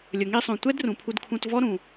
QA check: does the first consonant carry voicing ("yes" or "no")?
yes